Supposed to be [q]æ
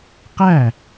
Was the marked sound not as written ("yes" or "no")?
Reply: no